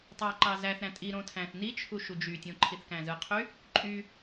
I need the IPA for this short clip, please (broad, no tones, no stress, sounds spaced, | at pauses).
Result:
tˤ ɑ ǃ ɑ z æ θ ɾ æ̃ tʼ i ɾ õ tʰ æ̃ θ n i t͡ʃʰ u ʃ u d͡ʒ y tʲ õ ǃʰ i θ k æ̃ z ɯ qʰ y | ǃʼ y